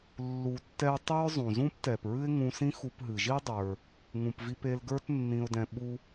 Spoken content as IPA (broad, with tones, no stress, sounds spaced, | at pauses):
lː u˧ tː ɛ˥ ə̯ tˤ ɨ˥ ɹ zˤ ũ˩ z ũ˥ p t ɛ˩ p ɹ ɨ˥ ɪ̯ ŋ ũ˧ s ĩ˥ x u˧ p ɦ ɨ˩ ʒ i˥ dˤ ə˞˩ | ŋ ũ˩ p v i˧ p e˧ l ɡ ə˞˥ t nː ĩ˧ ʊ̯ d ɛ̃˧ ɓ u˧